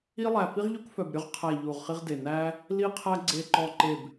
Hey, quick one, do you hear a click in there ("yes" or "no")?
yes